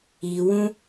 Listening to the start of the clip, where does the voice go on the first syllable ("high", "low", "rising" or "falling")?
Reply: low